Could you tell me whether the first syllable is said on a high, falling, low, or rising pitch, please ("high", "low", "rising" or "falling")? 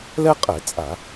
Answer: high